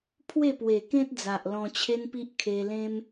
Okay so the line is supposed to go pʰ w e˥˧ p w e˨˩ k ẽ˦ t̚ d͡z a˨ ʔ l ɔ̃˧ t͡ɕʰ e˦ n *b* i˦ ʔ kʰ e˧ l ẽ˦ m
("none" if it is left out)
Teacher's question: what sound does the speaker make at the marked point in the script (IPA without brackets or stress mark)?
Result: p